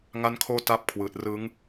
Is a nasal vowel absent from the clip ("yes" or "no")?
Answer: yes